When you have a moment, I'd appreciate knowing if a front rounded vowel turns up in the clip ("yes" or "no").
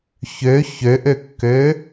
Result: yes